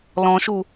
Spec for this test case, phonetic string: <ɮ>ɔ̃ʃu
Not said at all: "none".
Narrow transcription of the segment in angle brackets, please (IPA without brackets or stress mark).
l